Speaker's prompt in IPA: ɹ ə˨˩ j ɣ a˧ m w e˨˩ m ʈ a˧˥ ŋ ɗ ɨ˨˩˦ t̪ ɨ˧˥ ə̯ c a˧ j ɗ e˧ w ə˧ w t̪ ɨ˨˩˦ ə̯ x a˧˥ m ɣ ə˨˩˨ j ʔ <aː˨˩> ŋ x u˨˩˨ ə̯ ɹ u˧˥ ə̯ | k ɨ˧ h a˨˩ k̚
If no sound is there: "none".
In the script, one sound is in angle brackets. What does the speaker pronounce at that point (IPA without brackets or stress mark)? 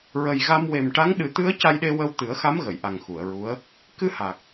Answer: a˨˩